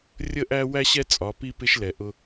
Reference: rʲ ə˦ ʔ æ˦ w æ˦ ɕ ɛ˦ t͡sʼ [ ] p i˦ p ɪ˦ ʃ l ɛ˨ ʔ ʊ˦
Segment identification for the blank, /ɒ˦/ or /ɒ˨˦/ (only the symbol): ɒ˨˦